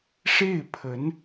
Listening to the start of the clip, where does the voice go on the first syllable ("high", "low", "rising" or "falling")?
falling